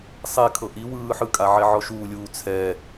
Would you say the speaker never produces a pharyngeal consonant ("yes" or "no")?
no